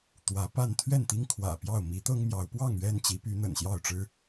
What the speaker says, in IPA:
t̪ w ä˨˦ p a˥˨ n t̪ʰ ɥ ɛ˥˨ n t̪ i˦ ŋ kʰ w ä̰˨˩ p j ɑ˥˨ ʊ̯ m i˨˦ t̪ ɤ˦ ŋ m j ɑ˨˦ ʊ̯ p w ɑ˥˨ ŋ ɥ ɛ˥˨ n t͡ɕ i˨˦ p y˨˦ n̪ ə̰˨˩ n ɕ j ɑ˥˨ ʊ̯ ʈ͡ʂ ɻ̩˦

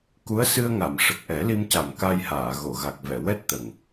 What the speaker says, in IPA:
k u˧˥ ə̯ s ɨ˧ ə̯ ŋ a˨˩˨ m ʂ ə˨˩ k̚ ʔ ɛ˨˩˦ l i˧ m c a˨˩ m k a˧ j h aː˨˩˨ ɣ o˨˩˨ ɣ a˨˩ k̚ v ɛ˨˩˨ w ɛ˦˥ t̚ t̪ ə˨˩ ŋ

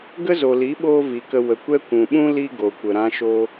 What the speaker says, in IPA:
ɡ ə˦ z o˨ l i˨˦ ɓ oː˦ v i˨ k ə˧ w ə˨ kʷ ɛ˦ kʷ ũ˨ ɓ ũ˦ l i˦ ɡ o˨ kʷ ə˨ ɾ ã˧ ʃ o˧

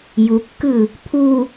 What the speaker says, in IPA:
j u kː ɯ | pʰ u

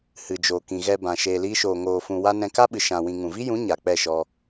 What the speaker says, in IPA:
h ɨ˨ d͡ʒ oː˨ k ĩ˨ ɣ ɛ˧ b ã˨ ʃ eː˧ l iː˦ ʃ oː˧ ŋ oː˧ f ũ˧ w a˦ n ɛ̃˧ k a˦ ɓ ɨ˨ ʃ ã˧ w ĩ˧ ŋ ũ˨ v i˦ j ũ˨˦ ɲ a˨ k͡p ɛ˦˨ ʃ ɔ˧

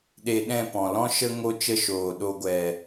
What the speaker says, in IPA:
ɗ e˧ ɗ ɛ̃˦˨ p ɔ̃˨ l ɔ̃˦ ʃ ə˦ ŋ o˦ t͡ʃ ə˦ ʃ oː˨ ɗ o˧ ɡʷ ɛ˨

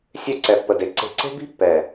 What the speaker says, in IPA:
sʲ ø˦ ǀ ɛ˨ pː ə˨ d e˨ ǀ e̤˨ ǀ e̤˦ b i̤˦ pː ɛ˨

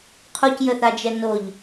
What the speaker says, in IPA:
qʰ o c j ə θ a d͡ʒ ɛ n o ʎ

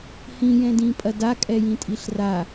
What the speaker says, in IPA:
h ĩ j ɛ̃ d ĩ pʼ ɐ d a kʼ ɛ j ĩ tʼ i ɬ r a

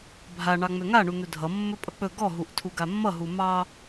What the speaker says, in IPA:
bʱ a ɳ ɑ ŋ͡m ø ŋ a ɳ u n̪ ɵ dʱ ʌ mː ɵ pʼ ʌ k͡p ɵ ɡ ɔ ɦ u ʔ tʰ u ɡ a mː ʌ ɦ u m ɑ

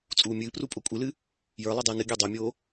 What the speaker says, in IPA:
t͡sʼ uː mʲ ɨː p r u pʼ o kʷʼ ɨ l ɨ | j ə˞ lˠ i dˤ ɨː n ɨ ɡʲ ɐː dˤ o mʲ oː

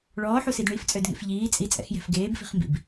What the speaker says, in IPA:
ɭ ɔː ħ u s i d ɳ i f t͡sʼ ø d ŋ ḛ f ʎ iː t͡sʼ i t͡sʼ ɛ̰ x j ɛ̤ f ɡ eː b f i̤ χ m b ḭ b

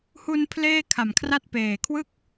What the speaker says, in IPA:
h u˧ n pʰ l eː˥˩ kʰ a˨˩ m kʰ r a˥˩ t̚ p eː˨˩ kʰ w ɯ˥˩ k̚

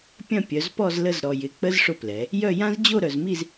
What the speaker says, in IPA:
pʲ ɐ̃˦˨ pʲ œ˩˧ z p ɔ˦˨ z l ə˦˨ z ɾ ɔ˨˩ j ɪ˩˥ k͡p ə˦˥ z ʂ ʊ˦˨ p l ɛ˩˧ | j œ˦˨ j ã˦˥ z d͡ʑ o˦˨ ɾ œ˨˩ z m i˦˨ z

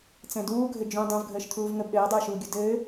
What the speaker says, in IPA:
t͡s ɛ̃ d uː ɡʱ ɘ d͡ʒ ũ dˤ ũ v ɡʱ əː ʃ t̪ʰ uː v ŋ ə b ɗ ɘː dˤ ɘː ʃ uː ɡʲ u d ɘː

